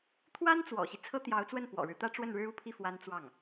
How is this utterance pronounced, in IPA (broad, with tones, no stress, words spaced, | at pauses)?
t̪ʰwa˥nt͡swɔ̰˨˩ɕi˦ t͡sʰɤ˥t̪jɑ˧˥ʊ̯t͡swə˥˩n pwɔ̰˨˩ɻɻ̩˦ t̪ä˥ʈ͡ʂwə˥˩nɻɻ̩˥ u˥˧pʰi˥˩ fwa˥n t͡swɑ˥˩ŋ